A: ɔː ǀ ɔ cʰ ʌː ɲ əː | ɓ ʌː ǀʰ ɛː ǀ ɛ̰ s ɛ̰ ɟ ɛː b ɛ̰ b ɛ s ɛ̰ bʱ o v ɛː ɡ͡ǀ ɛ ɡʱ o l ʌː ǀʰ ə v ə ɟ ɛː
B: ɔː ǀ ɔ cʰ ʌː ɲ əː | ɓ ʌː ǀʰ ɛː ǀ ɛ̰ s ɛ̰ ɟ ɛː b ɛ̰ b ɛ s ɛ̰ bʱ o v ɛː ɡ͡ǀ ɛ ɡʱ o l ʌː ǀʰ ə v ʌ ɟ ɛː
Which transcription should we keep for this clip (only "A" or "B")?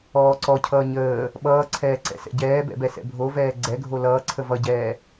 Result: B